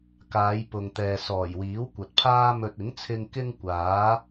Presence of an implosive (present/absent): absent